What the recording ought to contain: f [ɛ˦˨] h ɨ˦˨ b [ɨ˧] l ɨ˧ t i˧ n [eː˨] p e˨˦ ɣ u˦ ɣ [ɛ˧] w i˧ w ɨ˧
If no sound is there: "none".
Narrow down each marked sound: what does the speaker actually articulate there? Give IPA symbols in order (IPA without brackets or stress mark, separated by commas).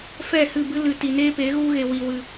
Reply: ɛ˦˨, ɨ˦, eː˦, e˧